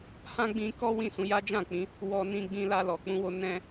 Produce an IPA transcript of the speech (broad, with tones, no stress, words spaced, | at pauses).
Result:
hã˦ɡ͡bĩ˧kɔ˦ wĩ˦˨sũ˨˦ja˦ d͡ʒã˦˨k͡pĩ˨˦ | wɔ˧nĩ˧ ɡ͡bĩ˧la˧ lɔ˨k͡pũ˧wo˧ nɛ̃˧